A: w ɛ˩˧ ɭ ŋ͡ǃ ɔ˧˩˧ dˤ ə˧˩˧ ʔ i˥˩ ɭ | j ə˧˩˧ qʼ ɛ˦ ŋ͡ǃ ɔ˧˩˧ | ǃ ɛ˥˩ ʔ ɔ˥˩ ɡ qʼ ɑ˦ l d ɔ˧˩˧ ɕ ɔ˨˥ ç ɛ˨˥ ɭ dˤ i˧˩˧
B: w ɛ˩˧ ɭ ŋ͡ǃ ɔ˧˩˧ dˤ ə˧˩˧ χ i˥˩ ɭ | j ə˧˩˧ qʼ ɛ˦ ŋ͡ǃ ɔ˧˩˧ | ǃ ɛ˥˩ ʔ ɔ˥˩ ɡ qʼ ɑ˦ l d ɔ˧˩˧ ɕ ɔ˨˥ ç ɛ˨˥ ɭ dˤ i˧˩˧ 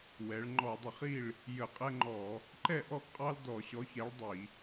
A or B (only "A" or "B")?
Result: B